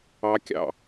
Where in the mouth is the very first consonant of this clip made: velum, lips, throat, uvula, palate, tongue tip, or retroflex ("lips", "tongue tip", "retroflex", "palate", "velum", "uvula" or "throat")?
velum